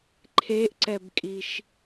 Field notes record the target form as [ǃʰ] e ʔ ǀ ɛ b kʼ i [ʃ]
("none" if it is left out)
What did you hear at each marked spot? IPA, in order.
ǃʰ, ʃ

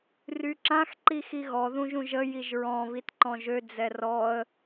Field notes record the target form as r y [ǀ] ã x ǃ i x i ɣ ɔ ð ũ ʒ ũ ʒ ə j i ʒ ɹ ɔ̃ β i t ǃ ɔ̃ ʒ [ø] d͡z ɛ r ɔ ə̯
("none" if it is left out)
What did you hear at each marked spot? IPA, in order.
ǁ, ø

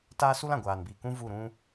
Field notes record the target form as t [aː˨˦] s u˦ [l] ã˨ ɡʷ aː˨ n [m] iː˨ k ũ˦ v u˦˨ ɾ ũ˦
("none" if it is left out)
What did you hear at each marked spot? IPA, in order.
aː˦, l, b

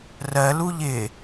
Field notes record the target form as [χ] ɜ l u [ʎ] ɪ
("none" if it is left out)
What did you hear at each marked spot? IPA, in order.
r, ʎ

